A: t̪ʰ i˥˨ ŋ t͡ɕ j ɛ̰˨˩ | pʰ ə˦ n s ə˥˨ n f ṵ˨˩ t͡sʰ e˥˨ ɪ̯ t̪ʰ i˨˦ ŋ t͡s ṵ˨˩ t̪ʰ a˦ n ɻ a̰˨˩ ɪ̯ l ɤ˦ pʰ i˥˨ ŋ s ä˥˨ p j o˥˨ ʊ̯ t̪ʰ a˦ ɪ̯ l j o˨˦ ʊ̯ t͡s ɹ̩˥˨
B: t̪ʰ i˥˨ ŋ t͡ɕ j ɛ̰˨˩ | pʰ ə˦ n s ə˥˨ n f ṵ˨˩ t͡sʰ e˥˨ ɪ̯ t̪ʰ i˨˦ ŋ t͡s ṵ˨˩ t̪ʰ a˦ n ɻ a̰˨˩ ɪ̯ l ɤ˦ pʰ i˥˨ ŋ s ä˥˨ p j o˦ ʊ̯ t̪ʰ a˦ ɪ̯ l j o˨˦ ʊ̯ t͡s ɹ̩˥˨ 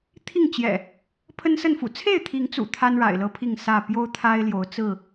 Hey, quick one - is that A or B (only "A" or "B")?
B